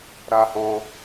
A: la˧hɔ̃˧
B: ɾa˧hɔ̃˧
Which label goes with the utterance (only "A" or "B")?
B